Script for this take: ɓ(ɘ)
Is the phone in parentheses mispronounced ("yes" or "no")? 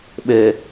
no